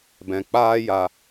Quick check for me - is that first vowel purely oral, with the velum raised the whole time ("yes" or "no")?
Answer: no